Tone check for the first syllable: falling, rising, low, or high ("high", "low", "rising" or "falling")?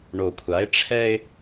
low